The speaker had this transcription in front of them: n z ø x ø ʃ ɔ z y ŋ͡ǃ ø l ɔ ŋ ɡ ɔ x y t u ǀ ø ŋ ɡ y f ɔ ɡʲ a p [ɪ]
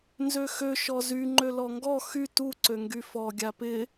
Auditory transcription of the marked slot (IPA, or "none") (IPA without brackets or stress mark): ɪ